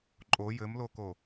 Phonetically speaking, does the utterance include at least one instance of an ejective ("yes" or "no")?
yes